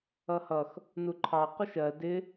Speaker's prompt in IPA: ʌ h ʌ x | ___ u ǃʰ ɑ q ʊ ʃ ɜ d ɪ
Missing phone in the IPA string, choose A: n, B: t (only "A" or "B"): A